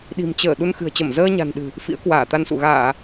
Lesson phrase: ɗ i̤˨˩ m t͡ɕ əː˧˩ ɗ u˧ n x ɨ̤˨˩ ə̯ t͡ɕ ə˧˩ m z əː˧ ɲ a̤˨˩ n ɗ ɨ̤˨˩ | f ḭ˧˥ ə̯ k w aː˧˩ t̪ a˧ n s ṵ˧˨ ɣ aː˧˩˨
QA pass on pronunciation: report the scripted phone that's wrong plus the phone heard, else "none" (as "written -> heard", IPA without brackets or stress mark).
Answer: none